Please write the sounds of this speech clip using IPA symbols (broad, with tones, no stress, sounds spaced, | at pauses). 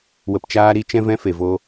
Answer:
w ə˧ p t͡ʃ aː˦ ɾ i˦ t͡ʃ ɛ̃˦ v ɛ̃˦ f e˨ v o˧